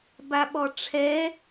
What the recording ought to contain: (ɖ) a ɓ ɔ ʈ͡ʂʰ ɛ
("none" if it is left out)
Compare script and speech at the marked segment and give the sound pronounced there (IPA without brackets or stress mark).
b